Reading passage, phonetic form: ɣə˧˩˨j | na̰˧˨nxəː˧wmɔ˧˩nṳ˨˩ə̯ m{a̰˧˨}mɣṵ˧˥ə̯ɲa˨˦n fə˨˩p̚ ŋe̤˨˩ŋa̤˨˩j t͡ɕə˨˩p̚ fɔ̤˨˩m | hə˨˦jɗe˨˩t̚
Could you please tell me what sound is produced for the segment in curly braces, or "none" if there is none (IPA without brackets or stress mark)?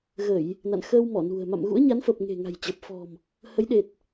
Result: a̰˧˨